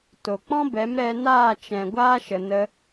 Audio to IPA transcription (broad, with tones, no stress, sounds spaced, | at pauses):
t o˨ k͡p ɔ̃˦ b ɛ˨˦ m ɾ ɛ˧ n aː˦˨ t͡ʃ ɛ̃˨ ɡʷ aː˦ ʃ ə˨ n ə˧